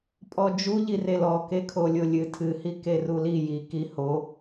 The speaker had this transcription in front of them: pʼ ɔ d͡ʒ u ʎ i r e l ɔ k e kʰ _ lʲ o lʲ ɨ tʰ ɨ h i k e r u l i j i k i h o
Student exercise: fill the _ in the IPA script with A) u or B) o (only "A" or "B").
B